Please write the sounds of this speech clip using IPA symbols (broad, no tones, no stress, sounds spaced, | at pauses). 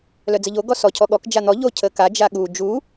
l œ d͡z ə ʎ o ɡ ɔ s ɔ cʰ ɔ ɠ ɔ k d͡ʒ a n̪ ɔ ʎ o cʰ ə k a d͡ʒ a ɠ u d͡ʒ u